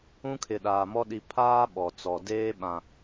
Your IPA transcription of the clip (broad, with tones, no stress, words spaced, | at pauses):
ũ˦kʰɪ˨ɗaː˨mɔ˦ ɗi˨pʰaː˦ ɓɔ˨t͡sɔ˨ deː˦ɓã˨